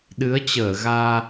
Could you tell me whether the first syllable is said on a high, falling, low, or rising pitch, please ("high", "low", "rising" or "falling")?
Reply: rising